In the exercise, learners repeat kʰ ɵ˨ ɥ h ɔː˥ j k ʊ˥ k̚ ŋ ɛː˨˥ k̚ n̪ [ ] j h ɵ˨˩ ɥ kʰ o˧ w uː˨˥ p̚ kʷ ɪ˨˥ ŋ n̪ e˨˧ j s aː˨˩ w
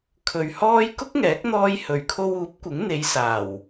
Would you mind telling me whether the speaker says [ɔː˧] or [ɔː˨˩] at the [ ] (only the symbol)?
ɔː˧